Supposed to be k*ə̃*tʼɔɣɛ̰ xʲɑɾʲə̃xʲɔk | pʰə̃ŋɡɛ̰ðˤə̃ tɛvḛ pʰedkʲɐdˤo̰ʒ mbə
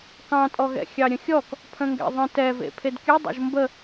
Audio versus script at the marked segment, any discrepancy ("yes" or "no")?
yes